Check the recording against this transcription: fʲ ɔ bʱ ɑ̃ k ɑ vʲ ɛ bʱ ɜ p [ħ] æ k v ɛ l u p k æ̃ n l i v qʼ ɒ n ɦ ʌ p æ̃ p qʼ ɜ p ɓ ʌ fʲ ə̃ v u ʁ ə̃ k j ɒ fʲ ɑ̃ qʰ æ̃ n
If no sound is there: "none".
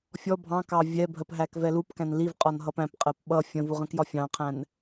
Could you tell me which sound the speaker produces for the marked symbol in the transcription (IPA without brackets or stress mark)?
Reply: ɦ